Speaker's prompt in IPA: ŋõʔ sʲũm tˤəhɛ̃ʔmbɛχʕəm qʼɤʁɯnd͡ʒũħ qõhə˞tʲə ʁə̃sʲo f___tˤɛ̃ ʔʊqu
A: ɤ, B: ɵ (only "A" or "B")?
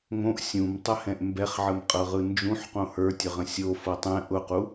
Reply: A